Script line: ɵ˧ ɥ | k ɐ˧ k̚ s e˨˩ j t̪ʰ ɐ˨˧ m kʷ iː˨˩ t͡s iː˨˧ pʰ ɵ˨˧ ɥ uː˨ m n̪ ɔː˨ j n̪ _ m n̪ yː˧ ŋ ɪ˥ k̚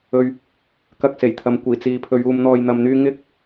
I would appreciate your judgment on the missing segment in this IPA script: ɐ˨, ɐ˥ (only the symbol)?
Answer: ɐ˨